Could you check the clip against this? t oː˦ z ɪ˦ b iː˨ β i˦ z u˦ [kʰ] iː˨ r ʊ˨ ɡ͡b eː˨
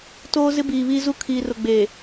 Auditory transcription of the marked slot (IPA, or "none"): kʰ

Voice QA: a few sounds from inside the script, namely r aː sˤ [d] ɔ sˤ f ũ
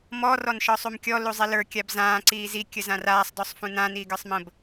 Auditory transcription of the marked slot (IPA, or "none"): d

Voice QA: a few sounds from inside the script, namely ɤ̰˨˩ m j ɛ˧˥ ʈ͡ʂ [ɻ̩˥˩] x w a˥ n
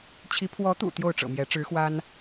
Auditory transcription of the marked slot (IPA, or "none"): ɻ̩˧˥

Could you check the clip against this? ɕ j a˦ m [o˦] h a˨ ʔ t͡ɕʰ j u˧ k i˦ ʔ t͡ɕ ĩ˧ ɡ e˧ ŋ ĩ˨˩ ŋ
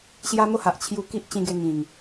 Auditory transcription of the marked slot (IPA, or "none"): o˦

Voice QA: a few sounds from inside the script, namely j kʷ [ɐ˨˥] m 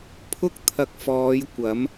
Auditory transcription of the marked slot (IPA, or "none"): ɐ˨˥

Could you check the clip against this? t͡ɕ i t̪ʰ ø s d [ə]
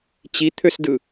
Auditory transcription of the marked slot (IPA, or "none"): ɯ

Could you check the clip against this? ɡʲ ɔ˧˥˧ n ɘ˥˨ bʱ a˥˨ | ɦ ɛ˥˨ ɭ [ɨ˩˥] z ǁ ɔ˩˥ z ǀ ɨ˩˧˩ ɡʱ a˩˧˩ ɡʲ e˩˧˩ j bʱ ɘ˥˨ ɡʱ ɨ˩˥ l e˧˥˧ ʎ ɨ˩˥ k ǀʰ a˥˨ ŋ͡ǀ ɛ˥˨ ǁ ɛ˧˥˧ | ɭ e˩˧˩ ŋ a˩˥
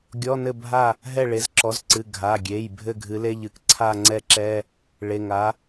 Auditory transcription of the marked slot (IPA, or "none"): e˩˥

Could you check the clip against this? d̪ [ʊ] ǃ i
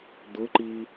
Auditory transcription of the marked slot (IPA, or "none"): ʊ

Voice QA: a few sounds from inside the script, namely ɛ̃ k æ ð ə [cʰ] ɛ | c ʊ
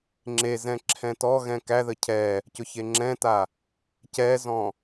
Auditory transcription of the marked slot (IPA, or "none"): cʰ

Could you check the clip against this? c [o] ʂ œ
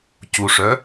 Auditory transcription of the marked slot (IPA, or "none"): u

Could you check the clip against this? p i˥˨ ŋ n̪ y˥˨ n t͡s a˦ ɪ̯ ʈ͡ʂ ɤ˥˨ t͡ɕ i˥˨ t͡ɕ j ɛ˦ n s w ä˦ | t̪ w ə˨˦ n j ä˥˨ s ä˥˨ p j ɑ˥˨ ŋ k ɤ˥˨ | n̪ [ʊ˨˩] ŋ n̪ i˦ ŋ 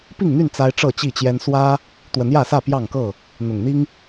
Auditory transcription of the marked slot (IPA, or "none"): ʊ˨˩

